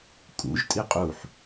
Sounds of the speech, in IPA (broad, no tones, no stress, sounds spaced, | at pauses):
kʼ ṵ ʒ tʼ i qʼ u ħ